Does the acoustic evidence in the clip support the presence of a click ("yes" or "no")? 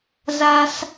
no